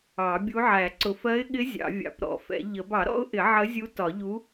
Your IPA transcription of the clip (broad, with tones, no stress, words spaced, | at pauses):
ɑ˨˩˦bʲu˧˥ ʕæ˨˩˦ǀʊ˨˩˦f ɜ˧˥ɪ̯ɠɪ˧˥ zʲɑ̰˨˩˦vʲɑ̰˨˩˦pɾɔ̰˨˩˦fɛ̰˨˩˦ ʎə˨˩˦b ɑ˨˩˦ɾɔ̰˧˥ʊ̯ʔɪ˨˩˦ ʕə˧˥zʲu˧˥ tɒ˨˩˦ʎu˧˥